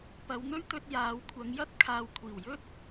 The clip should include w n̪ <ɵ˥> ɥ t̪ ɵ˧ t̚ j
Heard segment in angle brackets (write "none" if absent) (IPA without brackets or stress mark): ɵ˥